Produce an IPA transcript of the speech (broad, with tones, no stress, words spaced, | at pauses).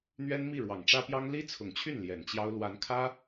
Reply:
n̪ɥɛ˥nmi˥˩ ɻwɑ˨˩ŋʈ͡ʂä˥pjɑ˥ŋ li˥t͡sʰʊ˨˩ŋt͡ɕʰy˥˩n ljɛ˨˩nt͡ɕjɑ˥ʊ̯ lwa˧˥nkʰä˥